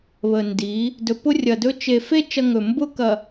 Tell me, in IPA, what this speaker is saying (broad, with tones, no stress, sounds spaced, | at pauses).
β ə˨ n d i˨˦ | d ɵ˨ p ʊ˦ rʲ ɐ˨ d ɵ˦ t͡ʃ e˨ f e˦ t͡ʃ ɐ˦ ŋ ɵ˨ m b ʊ˦ k ɐ˨